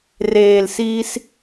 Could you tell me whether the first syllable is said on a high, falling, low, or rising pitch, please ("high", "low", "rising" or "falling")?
low